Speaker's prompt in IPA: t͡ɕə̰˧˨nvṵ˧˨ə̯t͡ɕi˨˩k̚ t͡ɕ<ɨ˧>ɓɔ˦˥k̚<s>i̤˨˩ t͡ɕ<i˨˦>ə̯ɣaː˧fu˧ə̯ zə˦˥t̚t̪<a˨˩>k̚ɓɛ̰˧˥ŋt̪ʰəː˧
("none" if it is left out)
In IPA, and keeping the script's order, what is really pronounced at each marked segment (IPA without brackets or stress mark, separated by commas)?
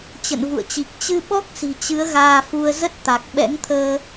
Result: ɨ˧, s, ɨ˨˦, a˨˩